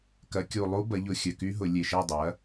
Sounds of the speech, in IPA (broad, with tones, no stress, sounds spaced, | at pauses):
k ɐ˩˧ kʲ u˨˩ lˠ u˦˥ b ɐ˩˧ ʎ ʊ˨˩ xʲ œ˨˩ k y˦˥ ɦ ʊ˧˩˧ lʲ e˨˩ ʃ ɛ˥˧ dˤ ɐ˩˥